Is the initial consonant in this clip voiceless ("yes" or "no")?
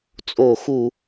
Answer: yes